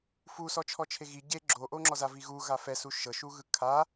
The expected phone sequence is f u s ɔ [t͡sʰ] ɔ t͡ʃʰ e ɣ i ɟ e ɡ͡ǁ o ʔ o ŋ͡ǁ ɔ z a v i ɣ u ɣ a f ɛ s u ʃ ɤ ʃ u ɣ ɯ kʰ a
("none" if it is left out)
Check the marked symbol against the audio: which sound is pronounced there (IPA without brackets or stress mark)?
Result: t͡ʃʰ